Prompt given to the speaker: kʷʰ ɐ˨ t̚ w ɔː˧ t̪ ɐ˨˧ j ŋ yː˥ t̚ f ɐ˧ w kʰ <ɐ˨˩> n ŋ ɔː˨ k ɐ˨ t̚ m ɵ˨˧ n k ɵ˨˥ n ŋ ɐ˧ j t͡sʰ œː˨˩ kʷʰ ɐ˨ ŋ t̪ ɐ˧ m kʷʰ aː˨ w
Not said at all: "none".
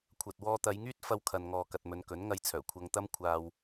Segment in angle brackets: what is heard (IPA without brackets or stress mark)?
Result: ɐ˨